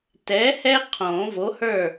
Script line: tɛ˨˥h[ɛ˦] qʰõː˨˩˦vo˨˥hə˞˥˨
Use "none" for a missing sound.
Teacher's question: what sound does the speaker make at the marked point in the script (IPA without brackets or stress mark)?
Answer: ɛ˦